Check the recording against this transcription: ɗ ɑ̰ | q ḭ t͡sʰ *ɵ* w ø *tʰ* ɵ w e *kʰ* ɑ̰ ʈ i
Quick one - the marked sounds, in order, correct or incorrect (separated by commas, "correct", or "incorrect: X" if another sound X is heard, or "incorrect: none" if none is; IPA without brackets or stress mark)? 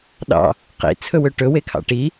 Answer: correct, incorrect: ʈ, correct